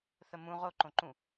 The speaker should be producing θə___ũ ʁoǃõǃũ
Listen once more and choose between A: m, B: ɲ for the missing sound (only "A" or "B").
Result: A